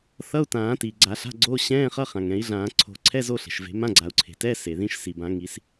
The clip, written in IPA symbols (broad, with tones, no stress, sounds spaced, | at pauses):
θ ʌ˧˥˧ u̯ t ãː˨˩˦ t iː˩ ɡ͡ǀ a˨˩˦ ɬ a̤˧˥˧ ɡ͡ǀ oː˧˥˧ ɕ ɛ̃ː˧˥˧ χ ʌ˧˥˧ χ ã˩ ŋ ɛ̃˨˩˦ i̯ ɮ ãː˨˩˦ ǀʰ o̤˨˩˦ ǀʰ ɛ˧˥˧ z o˧˥˧ ɬ e̤˩ ʃ v e̤˨˩˦ m ã˧˥˧ ɡ͡ǀ a˨˩˦ u̯ ǀʰ e̤˩ t ɛ˧˥˧ s e˩ ð ĩ˧˥˧ ʃ s i˩ b ã˨˩˦ ŋ i˨˩˦ s